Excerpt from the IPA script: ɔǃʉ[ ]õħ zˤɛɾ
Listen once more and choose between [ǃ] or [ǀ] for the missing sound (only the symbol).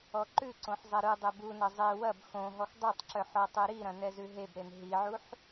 ǀ